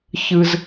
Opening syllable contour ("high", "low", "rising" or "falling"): high